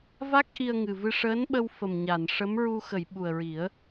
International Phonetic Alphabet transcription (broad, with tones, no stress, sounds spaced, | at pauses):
v a˦˥ k̚ ʔ i˧ ə̯ ŋ ɨ˨˩ v ɨ˧ ʂ əː˧˥ n ɓ ə˧ w f ə˨˩ m ɲ a˨˩˨ n ʂ ə˧˥ m ɹ u˧ x ə˨˩˨ j ɓ u˨˩ ə̯ ɹ i˨˩˦ ə̯